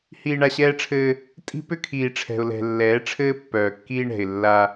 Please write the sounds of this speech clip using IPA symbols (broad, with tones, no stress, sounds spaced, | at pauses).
h iː˨ ɳ a˨ ɕ ɛː˦ ʈ͡ʂʰ ɘː˦ | tʼ i̤˦ p ʏ˦ kʰ iː˨ ʈ͡ʂʰ ɛ̤˨ ʊ̯ l ɛ̤˨ lː ɛː˨˦ ʈ͡ʂʰ ɘː˦ pː œː˨ kː iː˦ ɳ ɛ̤˨ ɪ̯ lː a˦